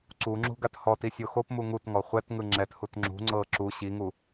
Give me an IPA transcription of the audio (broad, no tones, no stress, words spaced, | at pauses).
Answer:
ǀuŋ͡ǁṳ ɡathɔti sʲoxopmu ŋutŋɔ χʷɛtŋɯ ŋ͡ǁɛthut ŋ͡ǁṳ ŋ͡ǀɤ ǁu ɕiŋu